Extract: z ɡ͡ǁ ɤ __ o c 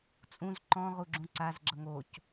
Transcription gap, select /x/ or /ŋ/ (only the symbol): ŋ